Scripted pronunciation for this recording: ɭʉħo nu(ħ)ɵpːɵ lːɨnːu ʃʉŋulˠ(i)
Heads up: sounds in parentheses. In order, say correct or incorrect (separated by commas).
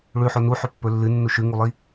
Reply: correct, correct